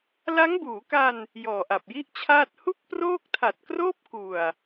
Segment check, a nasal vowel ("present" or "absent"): absent